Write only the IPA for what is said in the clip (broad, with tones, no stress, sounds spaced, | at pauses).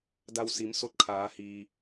d a˧ w s i˩˧ m s o˧ t̚ kʰ aː˩˧ h iː˩